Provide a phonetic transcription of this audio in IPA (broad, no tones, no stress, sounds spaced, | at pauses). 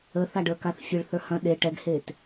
ə θ a ɖ ə˞ k a θ fʲ e ɭ θ ə˞ h ɐ̃ ɗ e ʈ ɛ ɡ h e t